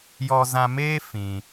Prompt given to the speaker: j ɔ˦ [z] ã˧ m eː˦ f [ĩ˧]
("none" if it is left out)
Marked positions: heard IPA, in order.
z, ĩ˧

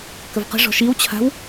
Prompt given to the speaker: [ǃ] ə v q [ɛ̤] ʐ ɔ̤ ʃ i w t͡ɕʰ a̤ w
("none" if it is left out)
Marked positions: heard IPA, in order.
k, ə̤

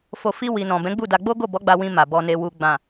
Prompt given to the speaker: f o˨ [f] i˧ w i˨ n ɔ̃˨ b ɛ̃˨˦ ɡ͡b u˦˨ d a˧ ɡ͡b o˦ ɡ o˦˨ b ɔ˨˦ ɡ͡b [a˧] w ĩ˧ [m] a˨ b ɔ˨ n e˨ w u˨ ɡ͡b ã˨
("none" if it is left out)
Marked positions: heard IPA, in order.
f, a˧, m

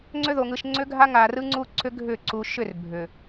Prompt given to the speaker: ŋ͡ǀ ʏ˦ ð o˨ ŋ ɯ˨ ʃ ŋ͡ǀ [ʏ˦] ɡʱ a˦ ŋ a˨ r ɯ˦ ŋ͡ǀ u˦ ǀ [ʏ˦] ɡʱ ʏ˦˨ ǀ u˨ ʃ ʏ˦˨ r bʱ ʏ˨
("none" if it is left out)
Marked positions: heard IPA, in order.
ʏ˦, ʏ˦

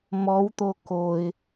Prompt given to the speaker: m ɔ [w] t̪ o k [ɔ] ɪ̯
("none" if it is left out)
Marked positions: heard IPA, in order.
w, o

